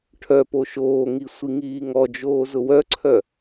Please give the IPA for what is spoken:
ʈʰœpo ʃoːŋi sʷiŋiːŋɔd͡ʒoː zʊwœǀʰœ

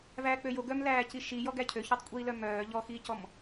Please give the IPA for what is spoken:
væːk͡pøjo ɡœmlæːci ʃijɔ ɡæcʰø çøtˤkʷʼiːlœmœː ʎɔxiːcɔm

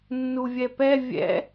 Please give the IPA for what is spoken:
nːuvʲɛpɛ vʲɛ̰

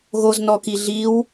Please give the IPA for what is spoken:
ɣoznɔki ɮiw

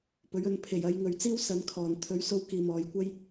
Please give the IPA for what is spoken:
pɵ˨˥ɥɵ˧n pʰe˨˩jɐ˨˧j ŋɵ˨ɥt͡siː˥w sɐ˨˧n kʰɔː˨˩n t̪ʰɵ˨˥ɥso˧w kiː˨mɔː˨˧jkʷɐ˥j

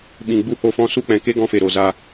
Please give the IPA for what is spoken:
ɓĩ˨ɡ͡bu˧ ho˧fɔ̃˧su˦˨k͡pɛ̃˨ ke˦ɡɔ̃˧fe˨ ɾo˨ za˧

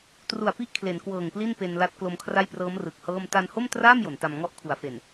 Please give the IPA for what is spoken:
tru˨˩a̯pi˥˩ʔ kʰle˩˦nkwɤː˨˩ŋpli˥˩n pe˧nla˦˥t̚ klo˧mkʰra˥˩jprɤː˦˥m rɯ˨˩k̚hɤː˥˩m ta˧nho˥˩mtraː˥˩m jo˩˦nta˧m ŋɔ˥˩ʔkʰu˩˦a̯fe˨˩n

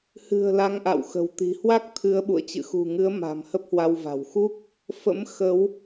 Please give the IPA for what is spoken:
hɨ̤˨˩ə̯ la˨˦ŋʔa̰˧˨wxə̤˨˩wt̪i̤˨˩ hwa˦˥k̚t̪ʰɨ˨˦ə̯ɓṵ˧˨ə̯ t͡ɕɨ̰˧˨xṳ˨˩ŋɨ˨˦ə̯ ma̤˨˩m hə˦˥p̚hwa˧wva̤˨˩w xu˦˥k̚ | fə̰˧˥mxə˨˦w

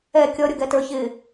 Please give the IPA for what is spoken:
ɛ kʲʌ ɾʲʌɡɛtə˞ çɪ

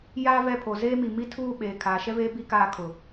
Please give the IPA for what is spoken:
jaː˦vɛ˦˨pʰo˨ zeː˦mi˨mi˦ tʰuː˦˨ ɓeː˨ kʰaː˨ʃɛ˦veː˦ bi˦kaː˦˨ kʰʊ˨

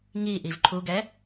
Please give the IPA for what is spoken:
ŋi ʔivǃʰuɡɛ

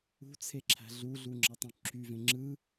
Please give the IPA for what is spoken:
ṳt͡sʰeǁʰæ̤ ɮuɮuŋ͡ǁɑtˤũ ǁʰyvẽ ŋ͡ǁɯ

